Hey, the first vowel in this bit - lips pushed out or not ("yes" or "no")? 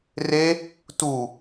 no